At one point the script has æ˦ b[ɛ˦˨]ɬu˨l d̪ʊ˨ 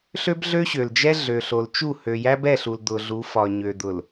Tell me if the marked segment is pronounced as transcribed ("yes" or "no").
yes